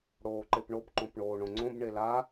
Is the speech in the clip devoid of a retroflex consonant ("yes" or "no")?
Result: no